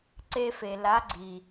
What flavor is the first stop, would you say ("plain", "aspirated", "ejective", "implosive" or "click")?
click